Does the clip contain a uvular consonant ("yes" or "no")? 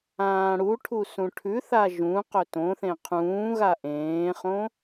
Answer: yes